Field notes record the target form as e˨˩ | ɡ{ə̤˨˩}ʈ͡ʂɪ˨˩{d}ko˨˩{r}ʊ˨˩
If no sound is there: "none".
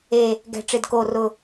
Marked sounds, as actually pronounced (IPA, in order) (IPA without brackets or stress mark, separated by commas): ɛ̤˨˩, d, r